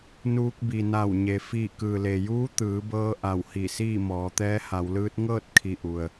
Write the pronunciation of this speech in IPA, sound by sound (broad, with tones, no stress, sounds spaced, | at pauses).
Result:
n uː˧ k̚ b i˩ n a˧˩ w ɲ e˩ f iː˧˩ k ɯː˩ l e˩ j uː˧˥ t̪ ɯː˩˧ b ɤː˧ ʔ a˧˩ w h i˧˩ s iː˥˨ m ɔː˩˧ t̪ ɛː˧˥ h a˩˧ w l ɯː˧˥ t̚ ŋ ɤː˥˨ t̚ kʰ i˧˩ ʔ u˩ ə̯